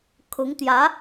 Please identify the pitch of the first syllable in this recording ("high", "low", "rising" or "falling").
rising